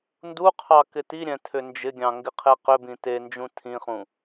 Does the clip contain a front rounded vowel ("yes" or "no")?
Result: yes